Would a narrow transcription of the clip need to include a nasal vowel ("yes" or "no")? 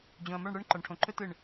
yes